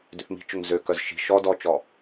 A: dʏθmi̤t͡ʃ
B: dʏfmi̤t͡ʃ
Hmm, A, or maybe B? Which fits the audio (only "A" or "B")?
A